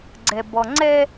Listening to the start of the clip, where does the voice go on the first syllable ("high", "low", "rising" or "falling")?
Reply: low